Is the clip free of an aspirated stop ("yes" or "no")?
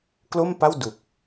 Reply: yes